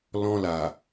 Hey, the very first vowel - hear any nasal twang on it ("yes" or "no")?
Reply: yes